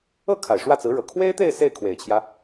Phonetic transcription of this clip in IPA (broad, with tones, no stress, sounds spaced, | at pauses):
ɤ˥˩ kʰ a˨˩ ɪ̯ ʂ w ä˥˩ t͡s ɹ̩˧˥ ɻ ɤ˨˩ kʰ w e˥ ɪ̯ t̪ e˥˧ ɪ̯ s e˥˩ ɪ̯ kʰ w e˨˩ ɪ̯ t͡ɕʰ j ä˦